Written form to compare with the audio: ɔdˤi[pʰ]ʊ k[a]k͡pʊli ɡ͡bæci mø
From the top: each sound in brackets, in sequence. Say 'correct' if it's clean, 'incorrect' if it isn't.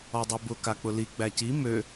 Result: incorrect: b, correct

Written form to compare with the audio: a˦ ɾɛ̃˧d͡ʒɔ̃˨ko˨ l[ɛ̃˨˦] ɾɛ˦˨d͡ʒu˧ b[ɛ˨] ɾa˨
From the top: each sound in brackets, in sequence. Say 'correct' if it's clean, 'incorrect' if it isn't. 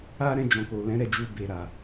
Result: correct, incorrect: e˨

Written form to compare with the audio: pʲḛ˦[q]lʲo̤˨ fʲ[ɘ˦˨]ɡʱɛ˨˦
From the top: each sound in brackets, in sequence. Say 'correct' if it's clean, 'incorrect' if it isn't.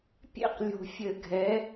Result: correct, incorrect: ɘ˨

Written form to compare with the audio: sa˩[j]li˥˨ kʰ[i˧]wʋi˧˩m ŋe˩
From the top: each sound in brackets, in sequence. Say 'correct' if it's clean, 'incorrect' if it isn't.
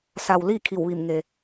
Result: incorrect: w, incorrect: i˧˩

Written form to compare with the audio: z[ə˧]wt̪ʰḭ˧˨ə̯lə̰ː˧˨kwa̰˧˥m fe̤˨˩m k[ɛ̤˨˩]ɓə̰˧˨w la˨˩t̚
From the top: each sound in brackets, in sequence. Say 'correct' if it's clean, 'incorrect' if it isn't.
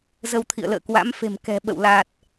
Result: correct, correct

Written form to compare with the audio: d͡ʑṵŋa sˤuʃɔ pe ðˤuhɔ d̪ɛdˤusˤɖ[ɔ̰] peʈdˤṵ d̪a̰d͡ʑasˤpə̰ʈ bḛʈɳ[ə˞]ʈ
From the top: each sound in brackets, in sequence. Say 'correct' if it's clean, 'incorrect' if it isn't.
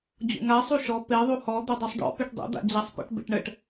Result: correct, incorrect: ə

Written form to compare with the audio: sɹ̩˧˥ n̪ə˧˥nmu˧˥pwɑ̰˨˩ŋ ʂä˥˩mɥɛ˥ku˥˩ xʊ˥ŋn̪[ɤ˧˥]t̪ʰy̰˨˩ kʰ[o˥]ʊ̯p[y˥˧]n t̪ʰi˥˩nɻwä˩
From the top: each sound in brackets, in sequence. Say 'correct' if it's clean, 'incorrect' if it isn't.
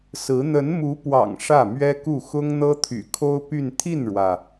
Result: incorrect: ɤ˥, correct, correct

